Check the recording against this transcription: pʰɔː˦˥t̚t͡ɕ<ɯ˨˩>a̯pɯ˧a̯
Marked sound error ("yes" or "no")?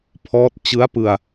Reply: yes